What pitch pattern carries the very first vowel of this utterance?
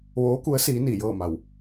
rising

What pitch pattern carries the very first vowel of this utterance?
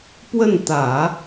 falling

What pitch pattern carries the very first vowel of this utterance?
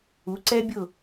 rising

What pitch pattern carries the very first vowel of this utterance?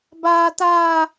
high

